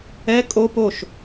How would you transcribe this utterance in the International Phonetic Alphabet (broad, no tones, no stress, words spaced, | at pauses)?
ɛ kʼo poʃ